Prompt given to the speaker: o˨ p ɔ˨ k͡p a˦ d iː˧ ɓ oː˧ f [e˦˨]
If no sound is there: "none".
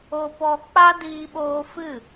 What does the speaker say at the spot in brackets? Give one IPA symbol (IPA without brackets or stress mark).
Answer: ɨ˦˨